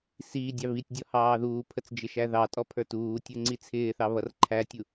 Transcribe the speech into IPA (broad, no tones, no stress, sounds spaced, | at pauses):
s i dʲ ɑ β i tʲ dʲ ɔ h ɑː ð uː pʰ ə t͡s d͡ʒ ɪ ʃ æ ð ɑ tʼ ɔ pʰ ə˞ t uː tʲ ə˞ ŋ͡ǀ i t͡sʰ ɪː θ ɑ β ʌ r ǃʰ æ tʲ u